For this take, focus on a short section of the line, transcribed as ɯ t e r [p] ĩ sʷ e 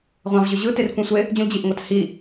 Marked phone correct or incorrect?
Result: incorrect